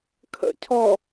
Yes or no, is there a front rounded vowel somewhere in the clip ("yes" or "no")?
no